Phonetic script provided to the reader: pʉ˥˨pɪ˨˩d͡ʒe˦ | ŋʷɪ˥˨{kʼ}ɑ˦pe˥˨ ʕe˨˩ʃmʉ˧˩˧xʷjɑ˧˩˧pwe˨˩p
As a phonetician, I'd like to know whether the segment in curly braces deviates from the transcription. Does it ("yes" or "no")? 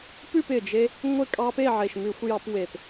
no